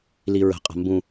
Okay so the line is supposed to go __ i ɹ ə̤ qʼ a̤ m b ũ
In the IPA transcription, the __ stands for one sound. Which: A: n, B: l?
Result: B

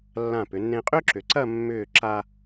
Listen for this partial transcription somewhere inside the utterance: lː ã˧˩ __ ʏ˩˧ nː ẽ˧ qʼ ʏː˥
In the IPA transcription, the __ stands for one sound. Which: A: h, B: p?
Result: B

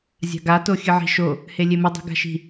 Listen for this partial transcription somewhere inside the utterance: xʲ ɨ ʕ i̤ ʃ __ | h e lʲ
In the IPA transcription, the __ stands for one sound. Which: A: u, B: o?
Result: B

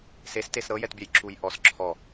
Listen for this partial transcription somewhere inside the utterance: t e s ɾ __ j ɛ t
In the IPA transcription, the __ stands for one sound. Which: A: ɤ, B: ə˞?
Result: A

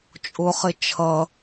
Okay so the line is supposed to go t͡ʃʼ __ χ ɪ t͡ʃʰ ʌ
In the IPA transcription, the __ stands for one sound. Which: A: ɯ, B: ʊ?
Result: B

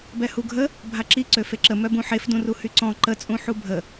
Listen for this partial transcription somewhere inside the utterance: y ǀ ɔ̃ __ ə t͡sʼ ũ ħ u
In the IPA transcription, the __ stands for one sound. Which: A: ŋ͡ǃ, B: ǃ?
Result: B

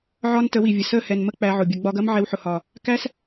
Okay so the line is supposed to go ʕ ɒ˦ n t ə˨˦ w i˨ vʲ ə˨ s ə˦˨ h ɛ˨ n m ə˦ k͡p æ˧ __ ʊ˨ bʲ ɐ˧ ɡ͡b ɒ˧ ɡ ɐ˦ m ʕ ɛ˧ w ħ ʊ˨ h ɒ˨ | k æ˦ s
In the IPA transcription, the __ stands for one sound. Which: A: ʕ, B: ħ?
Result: A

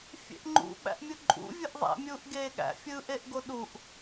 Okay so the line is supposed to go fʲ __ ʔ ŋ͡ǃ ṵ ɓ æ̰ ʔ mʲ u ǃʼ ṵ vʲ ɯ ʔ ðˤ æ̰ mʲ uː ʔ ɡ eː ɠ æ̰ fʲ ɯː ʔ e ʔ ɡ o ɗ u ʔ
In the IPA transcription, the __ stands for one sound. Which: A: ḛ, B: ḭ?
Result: A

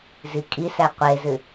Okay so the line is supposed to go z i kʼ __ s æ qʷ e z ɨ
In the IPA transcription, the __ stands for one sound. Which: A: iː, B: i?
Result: B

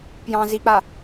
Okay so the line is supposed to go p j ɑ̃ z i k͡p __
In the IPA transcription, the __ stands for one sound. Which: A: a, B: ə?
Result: A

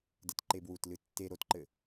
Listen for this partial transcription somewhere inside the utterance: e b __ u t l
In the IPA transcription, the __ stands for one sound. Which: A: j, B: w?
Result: B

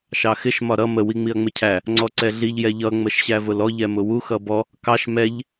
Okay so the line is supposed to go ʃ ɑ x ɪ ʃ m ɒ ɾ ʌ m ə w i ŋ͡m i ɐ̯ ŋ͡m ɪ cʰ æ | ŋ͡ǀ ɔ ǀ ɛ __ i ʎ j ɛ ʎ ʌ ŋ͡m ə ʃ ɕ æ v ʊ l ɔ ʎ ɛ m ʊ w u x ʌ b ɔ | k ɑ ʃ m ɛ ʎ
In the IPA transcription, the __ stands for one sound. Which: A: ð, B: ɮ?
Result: B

